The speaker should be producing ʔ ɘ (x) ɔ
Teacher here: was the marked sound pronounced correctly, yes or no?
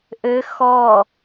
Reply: yes